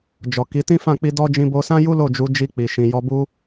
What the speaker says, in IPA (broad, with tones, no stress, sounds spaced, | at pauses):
d͡ʒ ɔ˨ k i˨˦ t ĩ˦ f ã˦˨ k͡p i˧ d ɔ˦ d͡ʒ ĩ˧ b o˧ s ã˦ j u˦ l o˦˨ d͡ʒ u˨˦ d͡ʒ i˧ k͡p i˨ ʃ ĩ˨ j ɔ˧ b u˦